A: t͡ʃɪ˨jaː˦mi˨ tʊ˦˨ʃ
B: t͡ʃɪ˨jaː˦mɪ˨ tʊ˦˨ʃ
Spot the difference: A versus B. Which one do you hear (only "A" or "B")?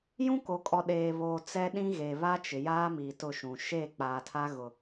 A